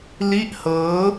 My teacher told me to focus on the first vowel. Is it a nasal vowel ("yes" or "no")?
no